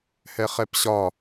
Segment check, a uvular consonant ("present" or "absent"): present